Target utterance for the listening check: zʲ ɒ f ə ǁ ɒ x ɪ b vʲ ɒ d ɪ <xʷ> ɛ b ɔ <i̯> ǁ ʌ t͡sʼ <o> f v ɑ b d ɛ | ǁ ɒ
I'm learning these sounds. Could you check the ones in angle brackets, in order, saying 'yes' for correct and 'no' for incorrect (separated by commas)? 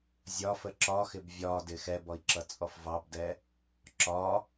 no, yes, no